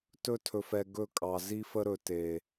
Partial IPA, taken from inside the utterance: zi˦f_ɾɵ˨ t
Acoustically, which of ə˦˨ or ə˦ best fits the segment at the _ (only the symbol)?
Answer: ə˦